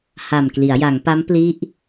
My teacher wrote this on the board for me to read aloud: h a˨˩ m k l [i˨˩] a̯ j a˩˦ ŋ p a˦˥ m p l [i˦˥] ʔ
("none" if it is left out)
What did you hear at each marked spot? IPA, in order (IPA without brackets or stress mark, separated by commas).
i˩˦, i˦˥